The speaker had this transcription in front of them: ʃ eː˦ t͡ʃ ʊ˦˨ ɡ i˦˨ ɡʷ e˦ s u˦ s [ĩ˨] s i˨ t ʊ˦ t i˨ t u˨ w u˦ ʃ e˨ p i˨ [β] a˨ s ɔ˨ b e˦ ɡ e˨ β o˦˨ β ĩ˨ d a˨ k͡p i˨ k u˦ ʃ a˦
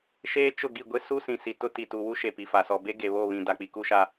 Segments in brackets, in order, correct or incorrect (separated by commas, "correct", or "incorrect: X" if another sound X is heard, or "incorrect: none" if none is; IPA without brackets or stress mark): correct, incorrect: f